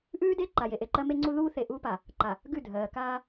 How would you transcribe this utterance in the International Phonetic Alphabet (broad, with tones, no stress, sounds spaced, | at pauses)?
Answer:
ʔ ʉː˦ d e˦ ǃ a˨ j e˨ ʔ e˨ ǃ ɜ˦ m e˦ ŋ͡ǀ u˦ ð uː˦ θ e˨ ʔ uː˦ p a˨ | ǃ a˨ | ɡ ʉ˦˨ dʱ ɜː˨ k aː˦